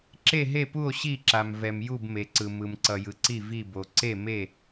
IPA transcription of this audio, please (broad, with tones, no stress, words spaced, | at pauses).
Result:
ǁe˥˧ɦe˥˧pu˥˧o̯ ɕi˥˧ǁa˧m vɛ˧mju˥˧bme˧ǀɯ˧ mɯ˧mǀʌ˧jɯ˧ǀi˥˧ vi˥˧bo˧ ǀe˥˧me˥˧